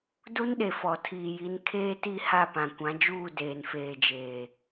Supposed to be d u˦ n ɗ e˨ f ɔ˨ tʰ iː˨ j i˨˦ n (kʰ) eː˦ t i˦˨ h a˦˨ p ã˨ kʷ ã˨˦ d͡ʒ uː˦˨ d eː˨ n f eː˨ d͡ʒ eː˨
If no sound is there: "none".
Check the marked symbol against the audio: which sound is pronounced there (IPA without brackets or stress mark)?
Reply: kʰ